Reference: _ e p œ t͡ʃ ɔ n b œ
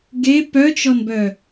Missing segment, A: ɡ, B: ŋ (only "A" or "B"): A